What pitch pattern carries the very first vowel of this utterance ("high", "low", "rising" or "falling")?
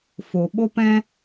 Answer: low